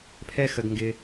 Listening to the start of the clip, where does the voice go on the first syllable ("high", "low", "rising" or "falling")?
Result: high